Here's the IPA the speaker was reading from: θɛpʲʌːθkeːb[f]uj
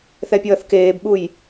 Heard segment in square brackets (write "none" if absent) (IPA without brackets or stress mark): ɓ